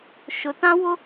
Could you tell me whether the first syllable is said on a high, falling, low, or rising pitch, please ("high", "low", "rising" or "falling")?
low